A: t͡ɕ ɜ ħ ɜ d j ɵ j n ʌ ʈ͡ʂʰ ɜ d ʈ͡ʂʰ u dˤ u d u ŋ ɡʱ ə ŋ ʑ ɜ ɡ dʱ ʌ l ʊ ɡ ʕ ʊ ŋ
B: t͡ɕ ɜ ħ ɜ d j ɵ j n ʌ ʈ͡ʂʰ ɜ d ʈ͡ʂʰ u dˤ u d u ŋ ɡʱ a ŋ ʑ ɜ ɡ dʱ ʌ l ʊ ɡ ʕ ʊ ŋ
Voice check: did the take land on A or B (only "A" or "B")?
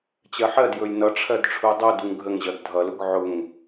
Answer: A